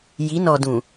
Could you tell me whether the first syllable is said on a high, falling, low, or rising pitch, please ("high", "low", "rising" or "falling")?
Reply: rising